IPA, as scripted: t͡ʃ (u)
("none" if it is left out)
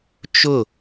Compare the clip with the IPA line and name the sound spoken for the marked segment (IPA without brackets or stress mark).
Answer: ʊ